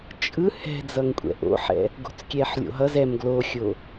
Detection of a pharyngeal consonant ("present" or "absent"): present